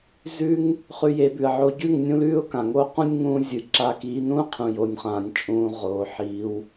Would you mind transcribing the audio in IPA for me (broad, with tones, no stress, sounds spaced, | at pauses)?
z ʉ˦ ŋ | χ ʉ˧ j e˨˦ b ʉ˨ ə̯ ʕ o˧ ɟ ʉ˦˨ ŋ nʲ ũ˦ l ʉː˦ ʊ̯ k ã˨ ŋ oː˦ q ũ˧ nʲ ŋ ũː˦ zʲ ɨ˨˦ ǁ aː˧ k iː˨˦ n ũː˦ qʰ ũ˨ j o˨ nʲ χ ãː˨ nʲ t͡ʃʼ ũː˧ ʁ oː˧ ħ iː˦ w